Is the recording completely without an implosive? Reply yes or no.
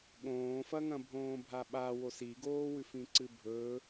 no